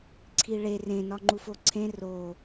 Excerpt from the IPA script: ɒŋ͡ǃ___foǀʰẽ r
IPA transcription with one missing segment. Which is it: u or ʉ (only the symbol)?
u